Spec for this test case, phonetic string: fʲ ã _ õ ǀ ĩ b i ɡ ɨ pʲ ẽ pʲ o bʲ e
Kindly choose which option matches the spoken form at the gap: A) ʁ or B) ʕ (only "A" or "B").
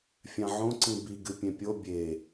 B